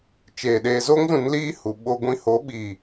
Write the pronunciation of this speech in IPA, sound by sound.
t͡ʃ eː˨ ɗ eː˧ z o˦ ŋ z ũ˨˦ n l iː˦ h u˨ ɓ o˧ ɡʷ ĩ˧ h o˨˦ ɓ iː˨

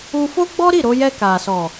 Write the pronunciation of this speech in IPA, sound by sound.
u˧ f o˦ ɡ͡b ɔ˦ ɾ i˦˨ ɾ o˧ j ɛ˧ k a˨ s ɔ˨

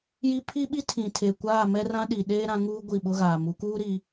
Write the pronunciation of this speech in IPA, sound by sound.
j i˦ pʰ i˦ ɓ i˦ tʰ ĩ˨ tʰ e˨ kʷ aː˦˨ m ɛ˦ r ã˦ ɗ i˨ ɗ eː˦ ɾ ã˨˦ ŋ uː˦ ɡʷ i˦˨ ɓ ʊ˦ ɣ aː˨ m u˨˦ k uː˦ ɾ i˨

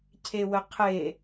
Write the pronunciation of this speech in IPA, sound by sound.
cʰ e w ə qʰ e

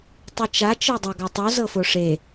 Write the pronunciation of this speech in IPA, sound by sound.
tˤ i t͡ʃ a t͡ʃ ɤ dˤ a ɡ a tˤ u z ɤ f o ʂ e

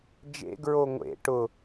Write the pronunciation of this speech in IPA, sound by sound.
d͡ʒ ḛ ɡ ɹ o ŋʷ ḛ ʈ ʊ

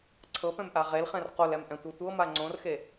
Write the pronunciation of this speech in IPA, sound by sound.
ǀʰ ɤ p ɛ̃ m ʔ a ʁ e l χ ɛ̃ r q o l ɛ m ʔ ɛ̃ tʷ ɤ tʷ ɤ m a ŋ͡ǀ õ r x e

